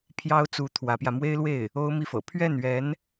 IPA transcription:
pʰ j ɑ˥ ʊ̯ t͡s u˧˥ t̪ʰ w ä˧˥ p j ä˧ m w e˥ ɪ̯ l w e˥˩ ɪ̯ | o˥ ʊ̯ m i˥˩ f ɤ̰˨˩ pʰ ɥ ɛ˥˩ n ɥ ɛ˧˥ n

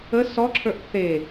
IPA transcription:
ə s ɔ ǁʰ ə˞ ʔ θ e

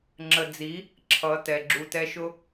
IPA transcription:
ŋ͡ǁ ə˨ d͡z i˨˦ | ǁʰ ʌ˨˦ t ɛ˨ ɡ͡ǁ u˧ t ɛ˦ ʃ ʊ˦

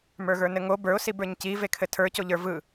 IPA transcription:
m ə˞ ɣ ə˞ n ɘ ŋ o b ə˞ ʊ̯ s i b ə˞ ɲ c i v e kʰ ɘ tʰ ə˞ c o ʎ ə˞ v ɯ

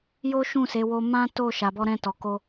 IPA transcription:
j o˦ ʃ ũ˦˨ s e˨˦ w o˦ m ã˦ t o˦˨ ʃ a˨ b ɔ˧ ɾ ɛ̃˧ t ɔ˨ k o˧

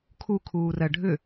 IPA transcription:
kʰ u kʰ uː r ɜ ɖʱ ʏ

